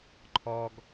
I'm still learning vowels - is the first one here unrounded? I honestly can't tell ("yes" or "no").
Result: no